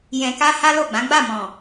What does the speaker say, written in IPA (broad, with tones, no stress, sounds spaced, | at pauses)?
j ɛ̃˧ k a˦ h a˦ l o˦˨ ɡ͡b ã˨˦ ɡ͡b a˦˨ m ɔ̃˨